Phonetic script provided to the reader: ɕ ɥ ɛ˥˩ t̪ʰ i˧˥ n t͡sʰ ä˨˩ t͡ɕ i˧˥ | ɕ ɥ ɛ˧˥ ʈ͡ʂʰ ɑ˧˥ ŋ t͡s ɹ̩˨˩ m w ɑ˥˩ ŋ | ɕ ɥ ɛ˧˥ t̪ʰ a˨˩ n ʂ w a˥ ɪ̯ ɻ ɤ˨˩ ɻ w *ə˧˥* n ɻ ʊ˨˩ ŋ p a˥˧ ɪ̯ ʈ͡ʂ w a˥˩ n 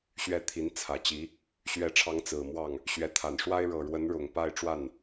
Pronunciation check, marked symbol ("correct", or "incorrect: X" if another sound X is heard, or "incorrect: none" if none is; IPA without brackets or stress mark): correct